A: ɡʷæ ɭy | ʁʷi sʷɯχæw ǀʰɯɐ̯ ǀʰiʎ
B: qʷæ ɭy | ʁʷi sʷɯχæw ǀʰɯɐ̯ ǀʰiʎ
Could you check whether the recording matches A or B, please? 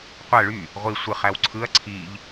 B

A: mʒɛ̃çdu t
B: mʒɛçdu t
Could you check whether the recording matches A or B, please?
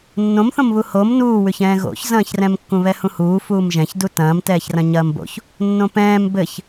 A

